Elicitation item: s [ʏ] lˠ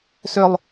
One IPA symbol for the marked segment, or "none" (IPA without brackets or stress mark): ʏ